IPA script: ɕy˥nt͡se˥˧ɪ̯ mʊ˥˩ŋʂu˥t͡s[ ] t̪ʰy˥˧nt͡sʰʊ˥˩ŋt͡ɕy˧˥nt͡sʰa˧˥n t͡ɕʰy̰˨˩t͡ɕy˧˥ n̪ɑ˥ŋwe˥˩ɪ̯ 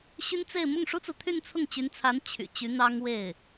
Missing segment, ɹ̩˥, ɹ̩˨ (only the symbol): ɹ̩˨